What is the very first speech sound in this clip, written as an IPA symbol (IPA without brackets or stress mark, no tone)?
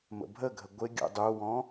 m